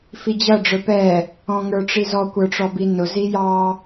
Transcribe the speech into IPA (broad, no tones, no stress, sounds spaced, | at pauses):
f i d͡ʑ ʌ ɖ͡ʐ ə˞ p ɛ | ɔ̃ ŋ ə˞ ʈ͡ʂ i z ɔ kʷ ə˞ ʈ͡ʂ ɔ b i n ʊ z i j ɑ